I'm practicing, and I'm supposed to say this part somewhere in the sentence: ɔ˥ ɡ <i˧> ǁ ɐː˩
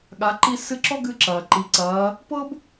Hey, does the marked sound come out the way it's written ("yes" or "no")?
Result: no